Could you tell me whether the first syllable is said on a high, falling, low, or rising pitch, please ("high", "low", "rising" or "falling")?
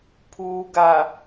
low